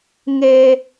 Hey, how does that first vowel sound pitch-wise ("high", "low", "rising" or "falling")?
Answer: high